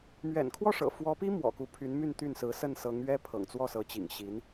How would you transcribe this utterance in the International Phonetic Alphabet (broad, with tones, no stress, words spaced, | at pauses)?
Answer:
mɥɛ̰˨˩nkʰwɔ˥˩ʂɤ̰˨˩ fwɔ˧˥pi˥ mwɔ̰˨˩ku˧˥pʰy˧˥nmy˥˧n t̪y˥˩nsɹ̩˧˥ sə˥˩nsɤ˧˥ŋɥɛ˥ pʰɤ̰˨˩ŋt͡swɔ˥˩sɤ˧˥t͡ɕḭ˨˩ŋ ɕi˧˥n